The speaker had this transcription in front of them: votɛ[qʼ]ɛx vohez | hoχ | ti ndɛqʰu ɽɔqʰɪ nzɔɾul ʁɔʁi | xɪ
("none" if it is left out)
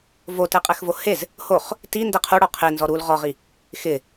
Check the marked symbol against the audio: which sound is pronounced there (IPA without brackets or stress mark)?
qʼ